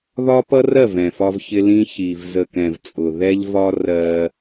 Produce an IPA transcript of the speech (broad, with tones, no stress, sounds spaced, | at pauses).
ð ɒ˦ p ʌ˦ r ɜ˦˨ v ɛ̃˨ f ɒ˦ v ç ɪ˦ l ĩ˦ ç i˨ v z ə˨ k ɛ̃˨ v t͡sʼ ʊ˨ ð ɛ˦ ʎ v ɒ˦ r ɜ˦